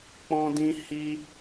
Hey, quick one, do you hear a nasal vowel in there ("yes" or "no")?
yes